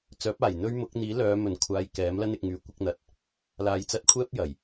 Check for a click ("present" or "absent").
absent